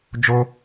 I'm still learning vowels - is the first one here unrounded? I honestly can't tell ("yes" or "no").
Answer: no